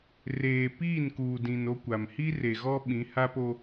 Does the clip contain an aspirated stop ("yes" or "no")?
no